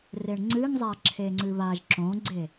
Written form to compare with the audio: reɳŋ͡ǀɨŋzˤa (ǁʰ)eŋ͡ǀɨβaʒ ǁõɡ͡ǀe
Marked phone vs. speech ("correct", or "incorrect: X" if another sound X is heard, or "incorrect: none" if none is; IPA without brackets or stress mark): correct